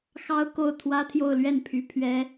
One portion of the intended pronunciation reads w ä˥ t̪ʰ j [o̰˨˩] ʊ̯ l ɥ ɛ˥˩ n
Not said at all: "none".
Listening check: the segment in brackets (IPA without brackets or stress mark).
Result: o˥˧